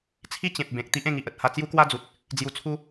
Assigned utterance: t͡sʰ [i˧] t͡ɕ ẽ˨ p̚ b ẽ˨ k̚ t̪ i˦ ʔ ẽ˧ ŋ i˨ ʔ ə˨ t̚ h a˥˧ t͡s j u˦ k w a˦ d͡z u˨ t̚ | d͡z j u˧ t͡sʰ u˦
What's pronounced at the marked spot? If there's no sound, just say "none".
i˦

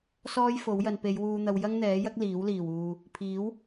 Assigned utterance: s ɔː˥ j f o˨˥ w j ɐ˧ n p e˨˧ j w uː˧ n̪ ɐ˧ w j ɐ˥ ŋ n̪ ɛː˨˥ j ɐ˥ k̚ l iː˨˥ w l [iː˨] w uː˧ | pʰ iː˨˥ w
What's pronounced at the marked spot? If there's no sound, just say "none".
iː˨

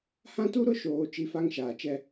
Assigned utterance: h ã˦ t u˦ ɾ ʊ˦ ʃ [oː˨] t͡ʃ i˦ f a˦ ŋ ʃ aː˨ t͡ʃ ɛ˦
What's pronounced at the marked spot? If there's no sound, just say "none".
oː˨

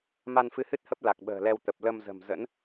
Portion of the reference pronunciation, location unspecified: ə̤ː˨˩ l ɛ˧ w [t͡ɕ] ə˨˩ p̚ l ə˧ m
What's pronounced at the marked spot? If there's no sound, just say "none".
t̪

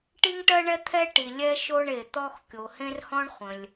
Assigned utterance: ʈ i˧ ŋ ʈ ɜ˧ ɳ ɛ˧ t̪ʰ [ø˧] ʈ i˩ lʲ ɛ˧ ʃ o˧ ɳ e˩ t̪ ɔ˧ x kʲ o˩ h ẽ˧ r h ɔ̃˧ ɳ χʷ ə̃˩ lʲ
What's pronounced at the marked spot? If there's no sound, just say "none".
ɛ˧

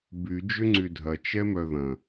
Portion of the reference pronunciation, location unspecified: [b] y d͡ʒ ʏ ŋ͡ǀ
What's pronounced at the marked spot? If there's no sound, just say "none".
b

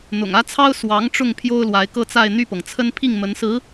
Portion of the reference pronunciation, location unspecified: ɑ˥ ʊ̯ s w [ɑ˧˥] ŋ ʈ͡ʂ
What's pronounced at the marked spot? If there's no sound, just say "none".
ɑ˧˥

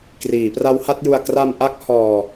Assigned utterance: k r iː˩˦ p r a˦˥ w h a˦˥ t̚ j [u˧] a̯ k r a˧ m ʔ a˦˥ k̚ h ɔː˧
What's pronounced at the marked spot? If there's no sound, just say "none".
u˧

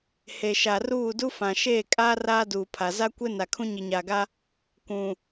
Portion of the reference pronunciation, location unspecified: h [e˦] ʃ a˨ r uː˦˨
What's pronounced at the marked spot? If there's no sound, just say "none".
e˨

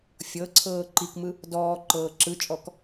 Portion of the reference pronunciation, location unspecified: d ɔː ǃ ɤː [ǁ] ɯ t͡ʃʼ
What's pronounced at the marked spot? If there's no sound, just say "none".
ǁ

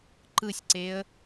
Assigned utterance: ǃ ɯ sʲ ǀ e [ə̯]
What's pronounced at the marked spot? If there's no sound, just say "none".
ə̯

